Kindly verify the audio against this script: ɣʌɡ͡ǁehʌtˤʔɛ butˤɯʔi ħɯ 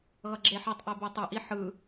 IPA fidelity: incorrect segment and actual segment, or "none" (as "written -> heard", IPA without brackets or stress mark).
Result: h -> ħ